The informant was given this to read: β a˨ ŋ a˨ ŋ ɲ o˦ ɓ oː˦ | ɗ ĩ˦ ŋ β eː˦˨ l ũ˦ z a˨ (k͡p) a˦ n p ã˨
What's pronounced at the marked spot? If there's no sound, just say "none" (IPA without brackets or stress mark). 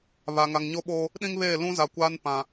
kʷ